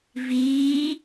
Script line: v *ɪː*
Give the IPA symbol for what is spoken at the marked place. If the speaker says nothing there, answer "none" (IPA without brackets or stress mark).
iː